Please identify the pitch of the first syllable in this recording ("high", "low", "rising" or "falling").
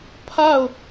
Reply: falling